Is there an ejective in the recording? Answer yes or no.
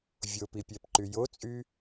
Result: yes